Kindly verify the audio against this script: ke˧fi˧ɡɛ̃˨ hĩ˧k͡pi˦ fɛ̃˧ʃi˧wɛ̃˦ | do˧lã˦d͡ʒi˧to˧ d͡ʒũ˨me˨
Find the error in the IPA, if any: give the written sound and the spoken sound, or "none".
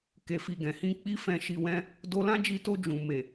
none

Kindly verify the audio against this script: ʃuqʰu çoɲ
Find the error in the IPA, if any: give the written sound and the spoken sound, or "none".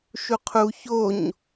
none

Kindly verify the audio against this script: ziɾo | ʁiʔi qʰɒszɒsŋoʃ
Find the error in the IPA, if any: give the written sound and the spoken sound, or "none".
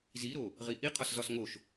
none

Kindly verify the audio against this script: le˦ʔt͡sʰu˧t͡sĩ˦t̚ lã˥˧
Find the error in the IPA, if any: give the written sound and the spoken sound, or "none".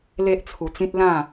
none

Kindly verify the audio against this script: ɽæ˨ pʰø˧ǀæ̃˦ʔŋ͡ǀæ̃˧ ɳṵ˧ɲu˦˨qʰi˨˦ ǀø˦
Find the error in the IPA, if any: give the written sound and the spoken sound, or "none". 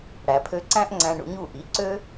qʰ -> ʔ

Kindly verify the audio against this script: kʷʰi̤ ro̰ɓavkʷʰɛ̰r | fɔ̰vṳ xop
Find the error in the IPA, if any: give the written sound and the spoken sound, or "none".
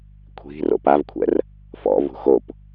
ɓ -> p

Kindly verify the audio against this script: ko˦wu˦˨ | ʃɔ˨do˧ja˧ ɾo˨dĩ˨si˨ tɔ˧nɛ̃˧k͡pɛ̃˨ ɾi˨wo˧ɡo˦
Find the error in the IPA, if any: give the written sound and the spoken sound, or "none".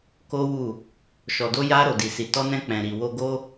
ĩ˨ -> i˨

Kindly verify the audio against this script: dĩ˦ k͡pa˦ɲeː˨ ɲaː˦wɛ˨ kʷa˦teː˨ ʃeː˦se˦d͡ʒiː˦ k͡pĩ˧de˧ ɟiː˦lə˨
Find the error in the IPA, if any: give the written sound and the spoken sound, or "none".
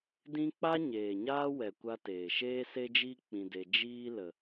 ɟ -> d͡ʒ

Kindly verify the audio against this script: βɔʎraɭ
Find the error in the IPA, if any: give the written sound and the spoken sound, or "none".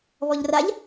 ɭ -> ʎ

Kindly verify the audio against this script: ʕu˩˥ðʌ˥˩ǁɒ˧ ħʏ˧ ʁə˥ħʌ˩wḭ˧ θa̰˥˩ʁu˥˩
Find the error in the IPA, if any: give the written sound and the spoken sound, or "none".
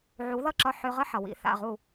none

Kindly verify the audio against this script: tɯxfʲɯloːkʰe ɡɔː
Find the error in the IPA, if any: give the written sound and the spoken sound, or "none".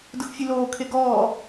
t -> d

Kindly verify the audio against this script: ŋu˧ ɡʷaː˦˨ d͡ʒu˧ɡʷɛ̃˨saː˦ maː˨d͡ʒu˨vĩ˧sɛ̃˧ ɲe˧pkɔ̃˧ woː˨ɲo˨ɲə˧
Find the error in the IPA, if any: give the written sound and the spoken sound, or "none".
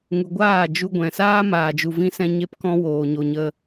none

